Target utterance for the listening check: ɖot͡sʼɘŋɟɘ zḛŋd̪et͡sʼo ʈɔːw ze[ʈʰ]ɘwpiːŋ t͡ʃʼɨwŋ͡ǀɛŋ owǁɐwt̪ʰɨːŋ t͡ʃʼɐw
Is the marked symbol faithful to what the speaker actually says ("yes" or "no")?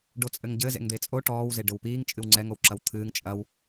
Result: no